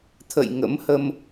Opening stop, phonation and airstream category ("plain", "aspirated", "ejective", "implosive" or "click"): aspirated